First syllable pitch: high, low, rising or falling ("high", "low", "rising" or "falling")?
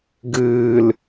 low